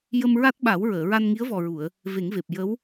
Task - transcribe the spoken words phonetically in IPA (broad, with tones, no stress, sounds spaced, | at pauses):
j ə˧ m ɹ a˦˥ t̚ ɓ a˨˩˦ w ɹ əː˨˩˨ ɹ a˧ n ŋ i˧˥ ə̯ v ɔ˨˩ ɹ u˨˩˨ ə̯ | v e˨˩˦ ŋ v e˨˩ p̚ j ə˧˥ w